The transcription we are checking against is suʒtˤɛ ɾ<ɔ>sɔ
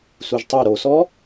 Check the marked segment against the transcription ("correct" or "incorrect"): incorrect